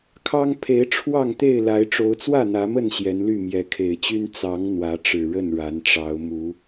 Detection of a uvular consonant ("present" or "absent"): absent